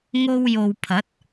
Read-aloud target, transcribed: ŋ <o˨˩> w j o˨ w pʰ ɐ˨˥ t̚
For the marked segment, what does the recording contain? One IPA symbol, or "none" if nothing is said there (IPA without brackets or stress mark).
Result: o˧